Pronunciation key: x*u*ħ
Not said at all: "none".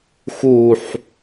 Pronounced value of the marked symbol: u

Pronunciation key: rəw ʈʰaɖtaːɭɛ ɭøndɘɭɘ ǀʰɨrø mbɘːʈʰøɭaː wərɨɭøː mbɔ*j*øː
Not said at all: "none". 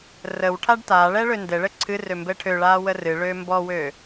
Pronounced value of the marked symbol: w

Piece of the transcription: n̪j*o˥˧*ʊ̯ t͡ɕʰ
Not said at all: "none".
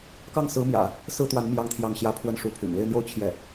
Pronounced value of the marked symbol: o˥˧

